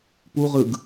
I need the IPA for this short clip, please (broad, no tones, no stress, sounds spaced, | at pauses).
p u ʁ ɯ ɡ